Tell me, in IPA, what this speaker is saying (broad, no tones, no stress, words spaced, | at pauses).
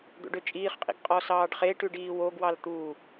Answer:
d̪o̰ɖøt͡ʃʼiːχqʼḭɡ qʼɔsɑːɖχeʈʉɖ iːwoɡwɑl t̪u